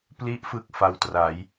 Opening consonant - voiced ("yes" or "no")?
no